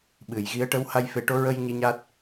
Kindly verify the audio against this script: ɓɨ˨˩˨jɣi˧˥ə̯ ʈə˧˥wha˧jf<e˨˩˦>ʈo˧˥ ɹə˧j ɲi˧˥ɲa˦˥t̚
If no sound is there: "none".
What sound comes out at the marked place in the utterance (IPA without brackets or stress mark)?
e˨˩˦